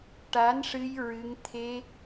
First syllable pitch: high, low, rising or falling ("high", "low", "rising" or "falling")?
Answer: rising